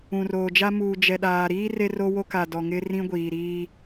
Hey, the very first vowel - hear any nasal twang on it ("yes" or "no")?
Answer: yes